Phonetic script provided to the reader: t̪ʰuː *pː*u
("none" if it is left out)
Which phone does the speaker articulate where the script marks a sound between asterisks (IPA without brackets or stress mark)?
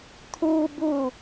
b